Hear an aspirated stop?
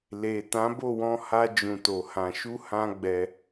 no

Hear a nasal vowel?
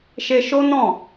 yes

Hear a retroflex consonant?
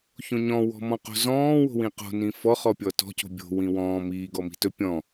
no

